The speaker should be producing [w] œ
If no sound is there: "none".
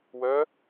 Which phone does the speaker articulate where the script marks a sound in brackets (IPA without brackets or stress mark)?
w